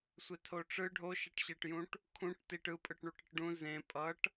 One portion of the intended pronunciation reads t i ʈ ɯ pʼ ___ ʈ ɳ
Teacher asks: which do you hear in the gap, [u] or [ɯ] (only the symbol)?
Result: ɯ